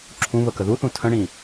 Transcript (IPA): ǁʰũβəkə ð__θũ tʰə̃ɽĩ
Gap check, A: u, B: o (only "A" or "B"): A